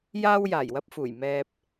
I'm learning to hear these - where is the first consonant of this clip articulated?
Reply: palate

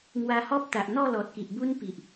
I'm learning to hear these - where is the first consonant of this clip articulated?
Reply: velum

